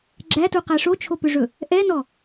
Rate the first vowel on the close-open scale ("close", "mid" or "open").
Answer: open